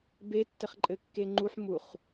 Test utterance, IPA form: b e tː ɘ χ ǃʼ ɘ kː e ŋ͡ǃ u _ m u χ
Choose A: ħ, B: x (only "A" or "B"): A